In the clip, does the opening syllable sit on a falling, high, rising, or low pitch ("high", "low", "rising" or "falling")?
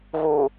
low